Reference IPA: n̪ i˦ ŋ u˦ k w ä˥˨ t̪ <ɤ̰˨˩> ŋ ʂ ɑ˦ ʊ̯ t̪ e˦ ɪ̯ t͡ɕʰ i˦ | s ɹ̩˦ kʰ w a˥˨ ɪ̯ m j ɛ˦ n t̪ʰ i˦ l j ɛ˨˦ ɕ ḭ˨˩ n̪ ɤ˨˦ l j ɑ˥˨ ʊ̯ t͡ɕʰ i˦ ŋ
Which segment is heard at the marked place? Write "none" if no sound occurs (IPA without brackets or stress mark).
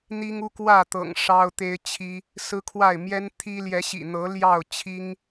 ɤ̰˨˩